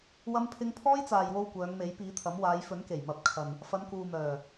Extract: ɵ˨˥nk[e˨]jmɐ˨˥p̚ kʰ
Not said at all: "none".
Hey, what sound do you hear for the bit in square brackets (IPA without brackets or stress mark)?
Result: e˨˩